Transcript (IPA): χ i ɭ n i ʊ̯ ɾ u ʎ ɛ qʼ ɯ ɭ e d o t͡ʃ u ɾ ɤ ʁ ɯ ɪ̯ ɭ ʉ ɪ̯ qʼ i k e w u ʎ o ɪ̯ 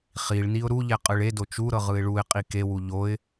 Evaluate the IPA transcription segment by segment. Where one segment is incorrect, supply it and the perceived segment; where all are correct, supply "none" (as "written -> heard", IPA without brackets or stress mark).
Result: ʉ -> u